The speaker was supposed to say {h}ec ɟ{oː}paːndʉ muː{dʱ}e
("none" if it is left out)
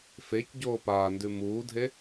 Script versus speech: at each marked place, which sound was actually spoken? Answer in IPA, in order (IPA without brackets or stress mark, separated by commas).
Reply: f, oː, dʱ